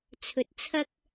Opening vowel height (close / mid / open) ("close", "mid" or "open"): mid